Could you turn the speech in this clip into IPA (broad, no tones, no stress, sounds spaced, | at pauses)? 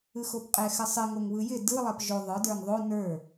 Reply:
ɯ x o p qʼ ɛ x ɘ sˤ ɪ ŋ o ŋ β ɯ j ɪ d ɯ lˠ ɛ p ʒ o ðˤ ə˞ d ə˞ ŋ ðˤ o n ə˞